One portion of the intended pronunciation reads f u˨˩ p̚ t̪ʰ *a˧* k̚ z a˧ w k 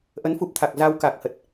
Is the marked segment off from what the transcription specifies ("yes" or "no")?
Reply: yes